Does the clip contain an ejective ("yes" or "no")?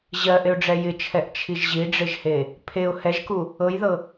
no